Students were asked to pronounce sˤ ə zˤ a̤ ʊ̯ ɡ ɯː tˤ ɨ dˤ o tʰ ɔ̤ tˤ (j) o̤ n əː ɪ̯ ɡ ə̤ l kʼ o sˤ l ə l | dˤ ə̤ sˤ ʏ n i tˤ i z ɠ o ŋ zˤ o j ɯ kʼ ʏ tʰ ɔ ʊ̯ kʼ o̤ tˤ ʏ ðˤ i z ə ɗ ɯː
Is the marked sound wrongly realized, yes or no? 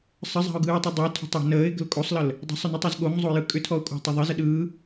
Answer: no